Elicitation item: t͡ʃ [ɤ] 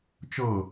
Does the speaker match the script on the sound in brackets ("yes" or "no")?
yes